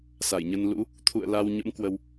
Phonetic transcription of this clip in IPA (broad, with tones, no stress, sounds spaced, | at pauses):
s a˧˩ j ɲ ə˧ n l ṵ˧˥ | t̪ʰ ṵ˧˨ ə̯ l a˧ w ɲ ə̰˧˥ m k w ə˧ w